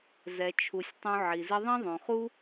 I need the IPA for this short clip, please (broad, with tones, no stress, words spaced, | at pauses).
zɛ˨t͡ʃʰu˨sʲtˤũ˧ ʕi˨ zɪ˧ðˤĩ˦ðˤõ˨χu˦